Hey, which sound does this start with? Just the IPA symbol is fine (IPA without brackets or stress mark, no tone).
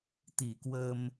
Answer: t̪